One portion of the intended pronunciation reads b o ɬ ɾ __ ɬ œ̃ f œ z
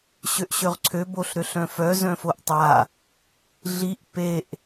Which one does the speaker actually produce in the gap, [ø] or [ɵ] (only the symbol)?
ø